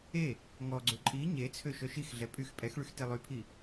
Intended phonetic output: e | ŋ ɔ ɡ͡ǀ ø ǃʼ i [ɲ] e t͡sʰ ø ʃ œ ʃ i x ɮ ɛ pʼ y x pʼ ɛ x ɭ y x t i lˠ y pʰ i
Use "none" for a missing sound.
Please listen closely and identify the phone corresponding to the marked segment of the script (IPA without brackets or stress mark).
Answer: ɲ